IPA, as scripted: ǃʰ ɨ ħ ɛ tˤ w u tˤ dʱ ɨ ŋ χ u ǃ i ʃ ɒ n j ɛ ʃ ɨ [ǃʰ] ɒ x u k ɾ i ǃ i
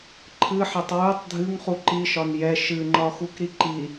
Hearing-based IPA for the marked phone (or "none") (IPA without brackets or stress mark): ŋ͡ǃ